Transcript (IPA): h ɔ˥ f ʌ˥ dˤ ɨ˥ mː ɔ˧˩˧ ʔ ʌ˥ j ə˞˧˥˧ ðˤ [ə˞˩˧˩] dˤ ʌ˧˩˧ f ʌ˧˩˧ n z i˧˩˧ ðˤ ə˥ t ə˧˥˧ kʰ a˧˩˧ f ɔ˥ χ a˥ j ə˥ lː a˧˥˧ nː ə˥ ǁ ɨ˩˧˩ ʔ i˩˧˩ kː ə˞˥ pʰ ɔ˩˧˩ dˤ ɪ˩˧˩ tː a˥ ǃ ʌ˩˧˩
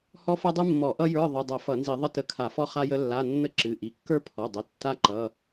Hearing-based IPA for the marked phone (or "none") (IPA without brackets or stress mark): ə˩˧˩